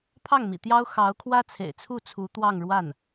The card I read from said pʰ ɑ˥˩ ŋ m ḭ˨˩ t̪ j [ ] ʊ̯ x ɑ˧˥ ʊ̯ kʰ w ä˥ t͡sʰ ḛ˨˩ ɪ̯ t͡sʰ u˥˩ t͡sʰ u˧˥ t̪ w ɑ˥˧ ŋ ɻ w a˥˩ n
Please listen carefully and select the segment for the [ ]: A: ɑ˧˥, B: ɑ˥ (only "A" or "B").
B